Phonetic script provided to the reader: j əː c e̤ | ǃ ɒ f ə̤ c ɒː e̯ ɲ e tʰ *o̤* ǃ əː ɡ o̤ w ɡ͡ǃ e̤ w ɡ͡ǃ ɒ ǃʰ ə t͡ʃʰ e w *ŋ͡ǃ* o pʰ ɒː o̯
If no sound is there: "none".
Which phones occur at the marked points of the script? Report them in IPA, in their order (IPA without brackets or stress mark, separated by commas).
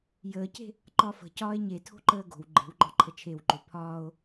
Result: o̤, ǃ